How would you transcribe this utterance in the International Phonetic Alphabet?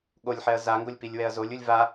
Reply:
ɠ o lʲ ħ ɛ ɐ̯ z a ŋ ɡ o lʲ p i lʲ w ɛ ɐ̯ z o lʲ u lʲ v a

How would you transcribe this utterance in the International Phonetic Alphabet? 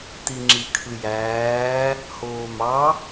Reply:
t i ŋ͡ǁ i kʰ ɯ j æː | h oː m ɑ

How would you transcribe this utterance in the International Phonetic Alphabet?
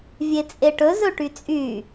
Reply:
vʲ e t͡sʼ e ʈ ɵ z ɵ ʈ y t͡sʼ y

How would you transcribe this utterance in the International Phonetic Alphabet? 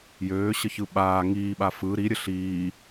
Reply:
j øː ɕ ə ç ɯ ɓ aː ŋ iː ɓ a f ɯ ɾ i ɾʲ ə ɬ iː

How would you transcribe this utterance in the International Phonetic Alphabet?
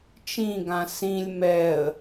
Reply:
t͡ʃ ĩ ɡ ã s ĩ lʲ m ɛ ə̯

